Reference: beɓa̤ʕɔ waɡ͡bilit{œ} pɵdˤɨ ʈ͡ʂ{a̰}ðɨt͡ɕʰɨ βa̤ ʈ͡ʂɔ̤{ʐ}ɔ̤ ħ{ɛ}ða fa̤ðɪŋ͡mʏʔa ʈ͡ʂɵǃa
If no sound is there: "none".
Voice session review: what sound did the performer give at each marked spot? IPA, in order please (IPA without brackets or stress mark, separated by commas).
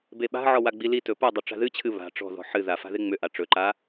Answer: ɵ, a̤, ð, ɨ